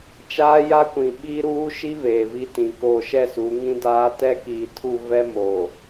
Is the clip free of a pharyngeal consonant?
yes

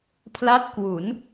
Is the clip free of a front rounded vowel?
yes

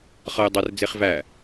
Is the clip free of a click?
yes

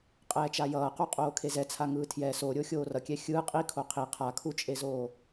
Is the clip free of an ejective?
no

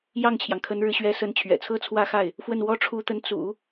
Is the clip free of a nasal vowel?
yes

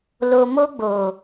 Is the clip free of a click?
yes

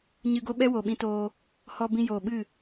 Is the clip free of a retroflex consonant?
yes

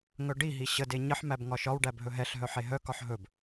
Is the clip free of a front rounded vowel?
no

